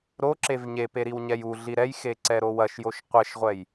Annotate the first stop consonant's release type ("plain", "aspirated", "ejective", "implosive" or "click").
click